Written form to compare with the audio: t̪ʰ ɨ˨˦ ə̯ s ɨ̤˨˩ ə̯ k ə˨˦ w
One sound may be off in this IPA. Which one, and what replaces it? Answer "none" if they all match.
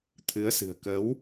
none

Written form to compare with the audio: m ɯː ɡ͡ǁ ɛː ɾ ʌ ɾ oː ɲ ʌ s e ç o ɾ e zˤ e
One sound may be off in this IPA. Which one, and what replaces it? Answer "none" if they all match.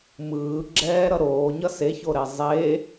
none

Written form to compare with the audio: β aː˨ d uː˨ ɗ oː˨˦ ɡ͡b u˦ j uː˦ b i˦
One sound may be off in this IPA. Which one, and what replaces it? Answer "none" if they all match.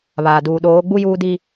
b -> d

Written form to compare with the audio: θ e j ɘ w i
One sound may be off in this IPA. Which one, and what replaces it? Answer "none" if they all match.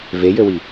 θ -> v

